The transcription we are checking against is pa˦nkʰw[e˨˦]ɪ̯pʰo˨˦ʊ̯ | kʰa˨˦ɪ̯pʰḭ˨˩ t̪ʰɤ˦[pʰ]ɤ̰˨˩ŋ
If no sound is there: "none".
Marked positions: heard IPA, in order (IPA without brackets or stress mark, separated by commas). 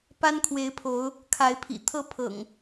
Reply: e˨˦, pʰ